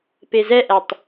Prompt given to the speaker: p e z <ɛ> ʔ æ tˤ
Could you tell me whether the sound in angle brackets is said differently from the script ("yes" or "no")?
no